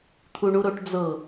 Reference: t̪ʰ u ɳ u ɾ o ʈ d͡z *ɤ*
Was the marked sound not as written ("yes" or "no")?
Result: no